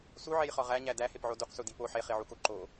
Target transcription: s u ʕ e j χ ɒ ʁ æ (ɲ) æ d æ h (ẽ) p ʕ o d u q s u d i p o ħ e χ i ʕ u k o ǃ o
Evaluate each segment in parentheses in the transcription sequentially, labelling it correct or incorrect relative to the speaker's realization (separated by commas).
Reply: correct, incorrect